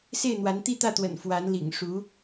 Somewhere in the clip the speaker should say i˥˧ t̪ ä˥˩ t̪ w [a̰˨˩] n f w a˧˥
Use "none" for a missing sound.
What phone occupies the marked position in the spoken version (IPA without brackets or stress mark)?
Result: ə̰˨˩